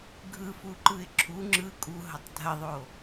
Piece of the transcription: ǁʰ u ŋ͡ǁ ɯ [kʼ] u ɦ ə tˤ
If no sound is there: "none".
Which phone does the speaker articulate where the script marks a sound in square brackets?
kʼ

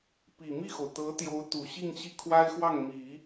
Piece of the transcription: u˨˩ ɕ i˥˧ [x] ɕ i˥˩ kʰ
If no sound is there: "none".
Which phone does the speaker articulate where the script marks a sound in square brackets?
ŋ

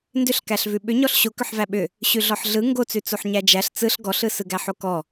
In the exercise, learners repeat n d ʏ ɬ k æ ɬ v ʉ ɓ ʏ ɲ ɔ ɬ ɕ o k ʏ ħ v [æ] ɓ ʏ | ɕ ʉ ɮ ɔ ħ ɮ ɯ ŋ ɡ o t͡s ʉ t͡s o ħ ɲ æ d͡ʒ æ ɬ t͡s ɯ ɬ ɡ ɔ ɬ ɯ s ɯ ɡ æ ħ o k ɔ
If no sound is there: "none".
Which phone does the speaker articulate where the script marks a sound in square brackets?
æ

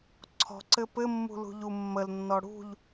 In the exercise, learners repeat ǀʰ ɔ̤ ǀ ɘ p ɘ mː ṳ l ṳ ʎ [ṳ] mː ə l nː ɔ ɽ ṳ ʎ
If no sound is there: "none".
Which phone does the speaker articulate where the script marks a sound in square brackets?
u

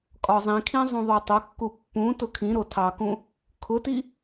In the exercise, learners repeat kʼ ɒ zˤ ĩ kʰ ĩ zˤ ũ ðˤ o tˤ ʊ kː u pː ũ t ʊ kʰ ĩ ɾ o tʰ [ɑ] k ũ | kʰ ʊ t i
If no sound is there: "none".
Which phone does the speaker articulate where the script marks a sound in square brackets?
ɑ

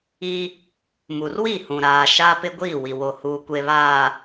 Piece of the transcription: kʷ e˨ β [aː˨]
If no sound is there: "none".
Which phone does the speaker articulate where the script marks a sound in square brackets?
aː˨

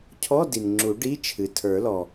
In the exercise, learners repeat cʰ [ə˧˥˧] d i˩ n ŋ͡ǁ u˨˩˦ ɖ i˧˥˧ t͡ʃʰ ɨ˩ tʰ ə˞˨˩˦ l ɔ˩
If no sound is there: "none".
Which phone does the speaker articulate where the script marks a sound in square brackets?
ɔ˧˥˧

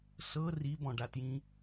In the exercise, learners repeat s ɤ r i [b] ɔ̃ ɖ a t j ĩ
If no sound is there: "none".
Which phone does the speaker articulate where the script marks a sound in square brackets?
b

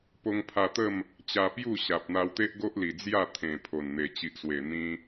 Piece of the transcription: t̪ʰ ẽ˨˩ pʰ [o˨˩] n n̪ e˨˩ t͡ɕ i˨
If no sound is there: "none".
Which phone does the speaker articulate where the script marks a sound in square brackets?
o˨˩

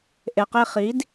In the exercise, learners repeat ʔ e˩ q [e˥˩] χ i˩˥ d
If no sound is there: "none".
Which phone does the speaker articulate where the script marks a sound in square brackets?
e˧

